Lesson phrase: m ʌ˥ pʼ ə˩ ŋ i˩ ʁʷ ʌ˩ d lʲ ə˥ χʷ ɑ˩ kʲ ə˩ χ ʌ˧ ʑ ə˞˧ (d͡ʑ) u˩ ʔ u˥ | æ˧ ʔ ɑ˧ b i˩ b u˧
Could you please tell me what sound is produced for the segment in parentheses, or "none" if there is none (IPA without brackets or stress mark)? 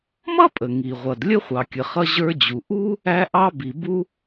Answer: d͡ʑ